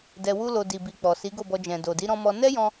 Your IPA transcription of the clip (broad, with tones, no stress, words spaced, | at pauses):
dɛ˧wu˦lo˧ di˨bi˨ k͡pɔ˨si˨˦ɡo˦˨bɔ˧ d͡ʒɛ̃˨do˨di˨˦ ɾɔ̃˧mɔ˧ nɛ˦jɔ̃˧